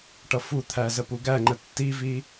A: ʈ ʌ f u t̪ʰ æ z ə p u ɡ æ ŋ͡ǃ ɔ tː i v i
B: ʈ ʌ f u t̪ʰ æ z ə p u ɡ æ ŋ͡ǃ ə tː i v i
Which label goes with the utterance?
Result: B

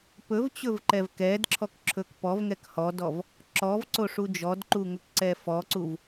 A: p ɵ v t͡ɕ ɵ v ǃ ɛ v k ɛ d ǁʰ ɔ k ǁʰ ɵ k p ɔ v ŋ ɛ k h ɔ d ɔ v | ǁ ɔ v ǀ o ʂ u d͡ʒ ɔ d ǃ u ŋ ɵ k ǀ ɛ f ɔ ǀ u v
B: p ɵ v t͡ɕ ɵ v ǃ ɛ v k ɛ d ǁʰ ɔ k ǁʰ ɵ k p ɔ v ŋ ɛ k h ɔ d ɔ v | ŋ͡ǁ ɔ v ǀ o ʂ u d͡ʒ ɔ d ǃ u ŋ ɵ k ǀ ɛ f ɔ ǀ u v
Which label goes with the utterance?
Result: A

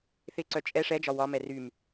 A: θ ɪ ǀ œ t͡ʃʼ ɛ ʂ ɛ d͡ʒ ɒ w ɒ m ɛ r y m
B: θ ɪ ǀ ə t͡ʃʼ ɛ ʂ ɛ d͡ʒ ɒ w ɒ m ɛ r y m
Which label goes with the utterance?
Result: A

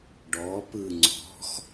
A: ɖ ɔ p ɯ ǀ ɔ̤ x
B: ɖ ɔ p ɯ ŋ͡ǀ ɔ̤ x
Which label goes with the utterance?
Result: B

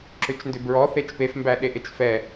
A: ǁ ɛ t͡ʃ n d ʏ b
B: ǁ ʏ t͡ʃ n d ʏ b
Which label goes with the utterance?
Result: B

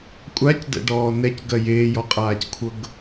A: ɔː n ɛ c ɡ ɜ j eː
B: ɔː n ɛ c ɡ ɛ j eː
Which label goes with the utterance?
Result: A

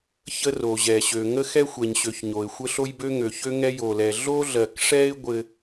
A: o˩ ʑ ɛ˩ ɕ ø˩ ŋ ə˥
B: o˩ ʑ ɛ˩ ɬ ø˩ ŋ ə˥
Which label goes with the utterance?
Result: A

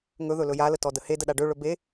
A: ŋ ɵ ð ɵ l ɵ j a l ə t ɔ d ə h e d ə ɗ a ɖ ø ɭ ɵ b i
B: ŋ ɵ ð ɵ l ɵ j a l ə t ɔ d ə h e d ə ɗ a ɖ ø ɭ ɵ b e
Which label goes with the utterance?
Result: B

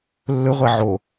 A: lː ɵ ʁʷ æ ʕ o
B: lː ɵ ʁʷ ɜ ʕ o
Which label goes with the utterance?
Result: A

